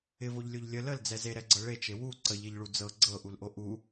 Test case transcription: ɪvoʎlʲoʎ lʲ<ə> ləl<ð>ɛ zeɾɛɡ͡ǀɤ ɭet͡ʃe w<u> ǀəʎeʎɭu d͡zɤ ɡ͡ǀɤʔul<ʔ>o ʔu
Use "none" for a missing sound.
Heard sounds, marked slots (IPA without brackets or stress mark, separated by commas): ə, d͡z, u, ʔ